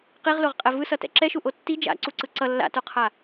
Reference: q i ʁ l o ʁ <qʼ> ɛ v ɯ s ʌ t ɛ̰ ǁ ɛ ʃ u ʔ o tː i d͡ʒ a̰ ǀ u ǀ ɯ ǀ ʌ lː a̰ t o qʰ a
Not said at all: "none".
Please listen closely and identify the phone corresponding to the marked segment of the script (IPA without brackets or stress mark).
qʼ